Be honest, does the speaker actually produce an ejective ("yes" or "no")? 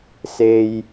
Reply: no